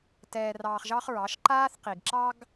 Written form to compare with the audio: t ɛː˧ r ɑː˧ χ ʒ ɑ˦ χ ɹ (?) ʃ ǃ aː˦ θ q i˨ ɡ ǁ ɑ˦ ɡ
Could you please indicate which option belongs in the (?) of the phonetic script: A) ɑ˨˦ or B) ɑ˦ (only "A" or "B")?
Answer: A